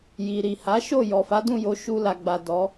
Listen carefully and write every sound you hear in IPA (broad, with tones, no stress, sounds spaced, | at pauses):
j i˨ ɾ i˨ h a˨˦ ʃ o˦˨ j ɔ˨ f a˨˦ d ũ˦˨ j o˨˦ ʃ u˧ l a˨ ɡ͡b a˨ d ɔ˨˦